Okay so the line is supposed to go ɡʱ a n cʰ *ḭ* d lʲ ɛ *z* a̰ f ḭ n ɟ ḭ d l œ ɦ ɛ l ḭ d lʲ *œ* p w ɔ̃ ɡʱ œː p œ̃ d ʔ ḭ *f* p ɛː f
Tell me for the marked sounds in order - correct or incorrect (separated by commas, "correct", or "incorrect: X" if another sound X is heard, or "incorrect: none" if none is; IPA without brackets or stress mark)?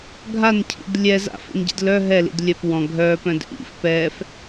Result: correct, correct, correct, correct